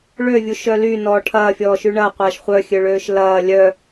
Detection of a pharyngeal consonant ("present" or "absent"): absent